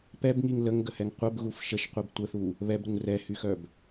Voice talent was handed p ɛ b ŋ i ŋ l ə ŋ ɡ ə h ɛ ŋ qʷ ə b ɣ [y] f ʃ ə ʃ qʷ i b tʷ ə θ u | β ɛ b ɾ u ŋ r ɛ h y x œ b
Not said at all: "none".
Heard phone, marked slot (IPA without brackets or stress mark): u